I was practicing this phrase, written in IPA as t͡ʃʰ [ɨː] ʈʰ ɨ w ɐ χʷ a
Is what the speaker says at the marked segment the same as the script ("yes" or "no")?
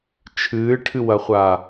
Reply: yes